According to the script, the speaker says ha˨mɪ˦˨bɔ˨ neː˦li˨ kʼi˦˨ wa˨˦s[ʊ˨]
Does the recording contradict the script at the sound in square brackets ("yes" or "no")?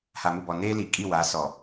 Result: yes